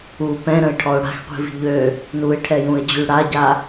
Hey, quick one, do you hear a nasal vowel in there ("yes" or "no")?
yes